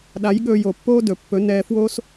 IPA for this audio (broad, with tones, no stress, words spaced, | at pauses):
ɗa˨˦jɠɵː˧jo˨pːoː˦ dɵ˨pːɵ˨˦ nɛː˧fwoː˦s